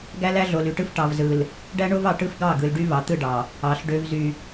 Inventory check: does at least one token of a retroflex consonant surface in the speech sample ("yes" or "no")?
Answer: yes